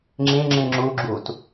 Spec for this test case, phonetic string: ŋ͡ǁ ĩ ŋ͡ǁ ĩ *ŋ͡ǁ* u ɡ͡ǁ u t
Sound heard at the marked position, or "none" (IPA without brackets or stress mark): ŋ͡ǁ